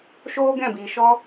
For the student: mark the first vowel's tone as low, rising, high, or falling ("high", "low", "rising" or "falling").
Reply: high